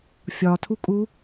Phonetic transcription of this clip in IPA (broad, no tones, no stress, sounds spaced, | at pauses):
fʲ ɒ tʰ u kʼ u